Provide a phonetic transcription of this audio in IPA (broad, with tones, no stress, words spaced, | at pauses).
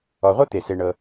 ɔ˨ʁʷɤ˥ t̪e˩se˨ ɳɤ˨